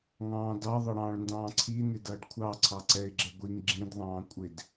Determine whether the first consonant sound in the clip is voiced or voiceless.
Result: voiced